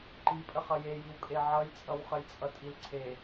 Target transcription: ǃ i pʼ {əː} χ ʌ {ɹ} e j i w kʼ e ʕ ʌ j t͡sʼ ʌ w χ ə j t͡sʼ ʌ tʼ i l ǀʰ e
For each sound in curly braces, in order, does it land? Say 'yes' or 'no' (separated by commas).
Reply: no, no